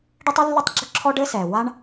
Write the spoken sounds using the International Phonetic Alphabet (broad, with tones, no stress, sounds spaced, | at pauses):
ɖ e˥ tˤ i˥ lː ɘ˥ tˤ ɡ͡ǁ ʊ˥ ǁʰ ɔ˥ ɖ ɘ˥ s ɛ˩ w a˥ ɳ